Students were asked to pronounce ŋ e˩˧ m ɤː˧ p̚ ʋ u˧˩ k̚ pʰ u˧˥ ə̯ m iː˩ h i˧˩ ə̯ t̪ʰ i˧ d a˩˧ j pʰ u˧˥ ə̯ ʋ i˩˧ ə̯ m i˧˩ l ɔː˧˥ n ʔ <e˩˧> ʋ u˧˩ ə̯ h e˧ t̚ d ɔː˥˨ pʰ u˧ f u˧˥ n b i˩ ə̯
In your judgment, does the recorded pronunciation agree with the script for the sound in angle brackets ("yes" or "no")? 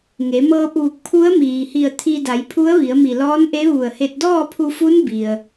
no